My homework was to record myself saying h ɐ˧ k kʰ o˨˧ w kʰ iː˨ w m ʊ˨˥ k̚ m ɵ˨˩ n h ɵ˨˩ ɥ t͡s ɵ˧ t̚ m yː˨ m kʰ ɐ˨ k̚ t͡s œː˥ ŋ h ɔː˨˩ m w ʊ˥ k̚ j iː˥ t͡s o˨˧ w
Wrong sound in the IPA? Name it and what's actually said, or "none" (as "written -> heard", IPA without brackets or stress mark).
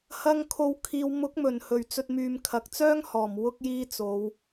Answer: k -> ŋ